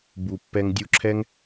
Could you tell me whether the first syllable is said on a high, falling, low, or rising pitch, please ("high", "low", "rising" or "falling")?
low